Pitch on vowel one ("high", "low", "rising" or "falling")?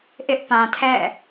high